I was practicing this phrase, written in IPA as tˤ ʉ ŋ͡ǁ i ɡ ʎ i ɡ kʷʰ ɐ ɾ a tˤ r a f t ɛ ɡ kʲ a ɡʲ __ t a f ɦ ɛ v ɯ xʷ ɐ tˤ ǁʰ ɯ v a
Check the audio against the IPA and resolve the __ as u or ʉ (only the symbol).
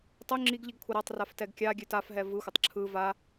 ʉ